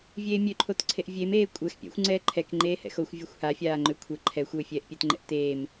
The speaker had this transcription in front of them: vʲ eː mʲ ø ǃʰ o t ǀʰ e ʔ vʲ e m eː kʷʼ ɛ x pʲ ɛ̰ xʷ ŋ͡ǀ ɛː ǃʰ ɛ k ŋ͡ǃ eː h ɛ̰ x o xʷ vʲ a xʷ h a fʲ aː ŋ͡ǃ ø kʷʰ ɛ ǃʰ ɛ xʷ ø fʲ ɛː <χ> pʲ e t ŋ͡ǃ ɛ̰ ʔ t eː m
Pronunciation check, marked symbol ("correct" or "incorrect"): incorrect